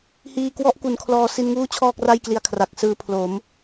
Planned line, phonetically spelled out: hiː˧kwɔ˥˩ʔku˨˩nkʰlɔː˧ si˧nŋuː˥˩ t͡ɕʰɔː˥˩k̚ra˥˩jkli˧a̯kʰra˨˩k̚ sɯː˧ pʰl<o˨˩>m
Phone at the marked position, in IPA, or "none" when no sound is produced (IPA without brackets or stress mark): o˩˦